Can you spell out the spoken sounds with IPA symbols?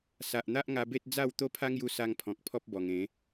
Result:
s a˨ ʔ n̪ a˦ ʔ ŋ a˧ b e˦ t̚ d͡z a˥˧ w t̪ o˦ pʰ a˦ ŋ j u˧ s a˧ ŋ pʰ ɔ̃˨ k̚ pʰ ɔ˦ p̚ b ɔ˨˩ ŋ ẽ˨˦

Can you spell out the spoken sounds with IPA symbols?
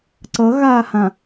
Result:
ǀ ʌ ɣ aː h ã

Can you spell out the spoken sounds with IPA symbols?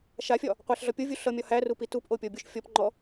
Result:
ʃ a fʲ ɒ | qʷ æ ɬ ɮ ɒ pʲ o vʲ u ɬ ʌ mʲ ɒ h æ r u p i t u p ʔ o pʲ ɔ bʲ o ʃ fʲ ɔ p ŋ͡ǃ ɔ

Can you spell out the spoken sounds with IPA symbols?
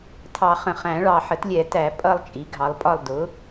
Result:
tʰ ɑ˨˩˦ χ ə̃˨ χ æ̃˨˩˦ ɭ ɑ˨ ħ ə˩˥ t lʲ ɛ˨˩˦ t æ˨˩˦ pʼ ʌ˥˨ lˠ t͡ʃʼ i˩˥ ɡʱ ɑ˩˥ lˠ pʼ ɒ˥˨ lˠ d ʊ˩˥

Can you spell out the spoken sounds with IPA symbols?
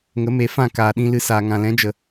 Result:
ŋ ə˨˦ m e˨˦ f ã˦˨ k aː˨ ɗ ĩ˧ l ɨ˧ s aː˨ ŋ ã˨ l ɛ̃˨˦ d͡ʒ ə˨

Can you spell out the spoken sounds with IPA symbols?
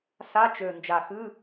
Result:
s a˧˥˧ t͡ʃ ø˨˩ n d͡ʒ a˨˩ x ɨ˧˥˧

